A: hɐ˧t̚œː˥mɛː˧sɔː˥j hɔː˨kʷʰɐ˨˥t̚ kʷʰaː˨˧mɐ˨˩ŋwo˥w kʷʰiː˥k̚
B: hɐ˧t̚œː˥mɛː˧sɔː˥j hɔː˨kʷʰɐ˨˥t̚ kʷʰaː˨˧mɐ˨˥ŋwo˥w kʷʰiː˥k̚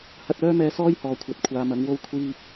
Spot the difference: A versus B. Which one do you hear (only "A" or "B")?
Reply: B